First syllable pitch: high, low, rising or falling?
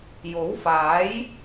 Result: rising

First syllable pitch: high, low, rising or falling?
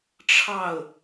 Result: falling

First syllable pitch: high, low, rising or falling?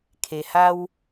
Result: low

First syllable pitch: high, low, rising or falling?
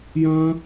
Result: high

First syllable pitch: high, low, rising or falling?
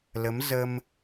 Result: rising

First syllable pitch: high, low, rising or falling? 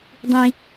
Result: low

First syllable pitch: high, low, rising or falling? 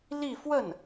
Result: falling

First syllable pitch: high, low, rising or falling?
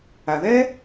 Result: low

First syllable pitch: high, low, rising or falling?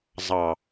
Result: low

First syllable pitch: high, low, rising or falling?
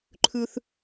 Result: high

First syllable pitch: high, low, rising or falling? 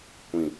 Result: falling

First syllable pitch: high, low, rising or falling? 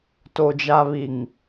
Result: low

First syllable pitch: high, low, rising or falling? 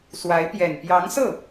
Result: rising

